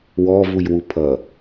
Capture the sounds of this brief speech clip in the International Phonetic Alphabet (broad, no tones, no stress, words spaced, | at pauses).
wɔ vujwupʰʌ